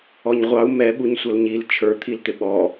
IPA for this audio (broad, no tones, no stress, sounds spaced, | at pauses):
ɔ ɲ ʁʷ ɑ u̯ m ɛ ɓ u ɲ sʷ ʌ l ɲ i l t͡ʃʰ ə˞ t̪ʰ i l t̪ ɪ ɓ ɔ